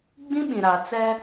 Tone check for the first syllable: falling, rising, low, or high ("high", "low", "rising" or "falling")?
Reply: high